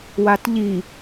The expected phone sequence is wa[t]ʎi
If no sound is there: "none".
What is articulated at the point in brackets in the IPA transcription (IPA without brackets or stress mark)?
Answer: t